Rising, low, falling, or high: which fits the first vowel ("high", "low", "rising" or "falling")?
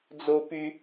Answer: high